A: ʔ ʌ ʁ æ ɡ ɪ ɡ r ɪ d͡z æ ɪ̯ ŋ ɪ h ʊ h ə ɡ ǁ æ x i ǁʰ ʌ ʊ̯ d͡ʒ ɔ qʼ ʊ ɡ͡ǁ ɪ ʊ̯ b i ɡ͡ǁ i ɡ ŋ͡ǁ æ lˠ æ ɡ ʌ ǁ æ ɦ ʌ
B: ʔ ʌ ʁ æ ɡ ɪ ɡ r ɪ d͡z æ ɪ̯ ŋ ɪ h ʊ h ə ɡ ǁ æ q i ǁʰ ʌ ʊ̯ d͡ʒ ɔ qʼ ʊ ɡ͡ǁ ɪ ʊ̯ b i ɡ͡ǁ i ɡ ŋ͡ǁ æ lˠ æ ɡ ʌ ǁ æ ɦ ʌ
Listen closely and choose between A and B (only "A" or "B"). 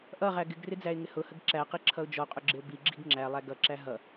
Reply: B